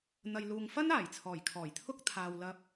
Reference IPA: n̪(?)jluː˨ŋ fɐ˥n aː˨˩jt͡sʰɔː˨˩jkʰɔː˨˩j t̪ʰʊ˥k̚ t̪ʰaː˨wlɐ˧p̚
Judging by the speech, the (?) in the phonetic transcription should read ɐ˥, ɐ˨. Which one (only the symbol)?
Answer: ɐ˨